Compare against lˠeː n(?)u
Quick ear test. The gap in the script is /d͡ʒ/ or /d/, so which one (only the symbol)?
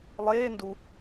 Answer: d